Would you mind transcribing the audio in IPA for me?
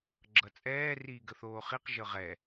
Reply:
ɡ͡ǁ ʌ t͡sʼ ɛː r iː ɡ ə θ oː χ i q ʒ ɤ ʁ ɛ

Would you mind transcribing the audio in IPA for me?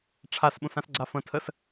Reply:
ʈ͡ʂʰ a s ɓ ũ s ã s ɡ͡ǀ a f ə̃ tʰ ə s

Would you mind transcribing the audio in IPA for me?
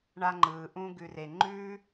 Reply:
ɳ a˧ ŋ͡ǃ ɯː˨ ʔ ũ˧ ɡ ʉ˨ r e˨ ŋ͡ǃ ʉ˧

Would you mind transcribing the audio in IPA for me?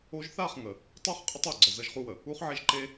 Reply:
o˦ ʒ θ a˦˨ χ ŋ ə˨ | tˤ u˦˨ χ qʼ ə˦ tˤ o˨ ɡ͡ǀ ə˨ z ə˦ ʒ χ u˦ w ə˨ | u˦ χ ʕ e˦ ʒ ǃ e˦

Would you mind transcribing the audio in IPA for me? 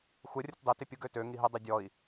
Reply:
xʷ ə rʲ ə t dˤ ɪ t ɪ pʲ u ɡ ø t ø ŋ i ɦ ɪ dˤ y dʲ ɔ i̯

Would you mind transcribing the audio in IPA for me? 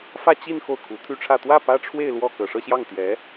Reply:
f ä˥˧ t͡ɕ i˥˧ n x o˥˩ ʊ̯ kʰ u˧˥ t̪ʰ y˥ ʈ͡ʂʰ ä˥˧ t̪ w ä˥˩ p ä˥ ʈ͡ʂʰ w e˥˧ ɪ̯ l w ɔ˥˩ k ɤ˨˩ ʂ ɤ˥˧ ɕ j ɑ˥˩ ŋ t̪ j ɛ˧˥

